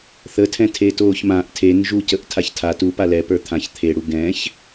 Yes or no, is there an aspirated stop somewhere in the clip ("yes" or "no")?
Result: yes